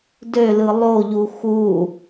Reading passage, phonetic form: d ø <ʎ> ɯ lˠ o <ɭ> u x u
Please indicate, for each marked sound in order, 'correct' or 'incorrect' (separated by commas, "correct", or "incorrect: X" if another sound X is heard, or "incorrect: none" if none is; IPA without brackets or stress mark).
incorrect: l, incorrect: ʎ